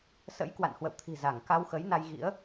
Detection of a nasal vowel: absent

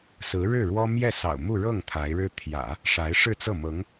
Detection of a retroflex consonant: present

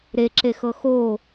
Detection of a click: present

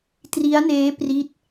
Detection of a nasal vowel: absent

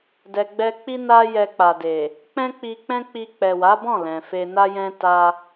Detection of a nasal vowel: present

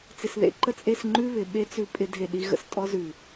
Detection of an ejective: present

